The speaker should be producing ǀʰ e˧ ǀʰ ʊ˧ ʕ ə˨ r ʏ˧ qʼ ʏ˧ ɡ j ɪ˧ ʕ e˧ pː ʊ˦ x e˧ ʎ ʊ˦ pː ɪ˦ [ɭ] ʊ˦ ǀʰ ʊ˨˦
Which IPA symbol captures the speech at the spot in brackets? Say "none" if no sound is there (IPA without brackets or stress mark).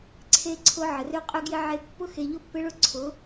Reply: ɭ